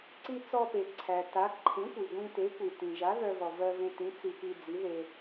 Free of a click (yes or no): no